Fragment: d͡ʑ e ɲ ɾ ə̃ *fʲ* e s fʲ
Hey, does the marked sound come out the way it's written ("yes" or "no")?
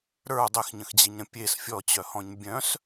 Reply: no